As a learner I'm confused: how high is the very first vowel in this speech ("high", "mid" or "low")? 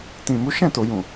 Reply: high